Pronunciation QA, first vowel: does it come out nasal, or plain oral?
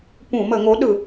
nasal